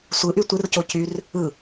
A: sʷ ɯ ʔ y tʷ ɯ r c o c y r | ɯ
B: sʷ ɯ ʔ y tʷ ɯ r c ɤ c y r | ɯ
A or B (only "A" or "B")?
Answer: A